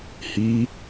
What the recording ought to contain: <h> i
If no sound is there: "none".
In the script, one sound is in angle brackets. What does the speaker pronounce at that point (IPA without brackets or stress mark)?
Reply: h